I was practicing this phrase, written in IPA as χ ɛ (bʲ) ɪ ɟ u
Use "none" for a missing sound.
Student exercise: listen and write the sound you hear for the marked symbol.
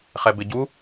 b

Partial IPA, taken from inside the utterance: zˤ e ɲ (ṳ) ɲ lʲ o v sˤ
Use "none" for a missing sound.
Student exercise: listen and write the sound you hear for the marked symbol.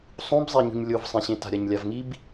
ṳ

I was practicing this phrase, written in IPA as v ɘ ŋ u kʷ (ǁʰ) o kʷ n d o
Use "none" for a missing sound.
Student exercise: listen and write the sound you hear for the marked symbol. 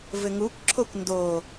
ǁʰ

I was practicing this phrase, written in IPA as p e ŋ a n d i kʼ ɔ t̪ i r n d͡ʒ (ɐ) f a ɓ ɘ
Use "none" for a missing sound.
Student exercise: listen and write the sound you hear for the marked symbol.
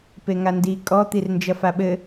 ɐ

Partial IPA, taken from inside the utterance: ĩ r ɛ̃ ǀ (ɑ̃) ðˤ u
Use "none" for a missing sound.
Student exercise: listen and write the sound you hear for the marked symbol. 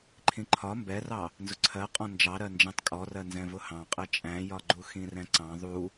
ɑ̃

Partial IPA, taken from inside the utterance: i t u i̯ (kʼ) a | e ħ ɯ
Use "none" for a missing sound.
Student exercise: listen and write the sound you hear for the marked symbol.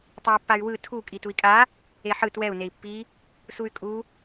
kʼ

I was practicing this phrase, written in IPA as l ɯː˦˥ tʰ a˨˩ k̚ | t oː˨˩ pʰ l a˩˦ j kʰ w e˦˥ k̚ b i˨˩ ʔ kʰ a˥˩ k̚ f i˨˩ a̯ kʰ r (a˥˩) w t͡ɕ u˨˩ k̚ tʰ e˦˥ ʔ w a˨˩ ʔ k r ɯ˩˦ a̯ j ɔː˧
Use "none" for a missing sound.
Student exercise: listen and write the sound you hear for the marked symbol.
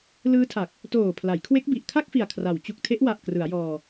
a˩˦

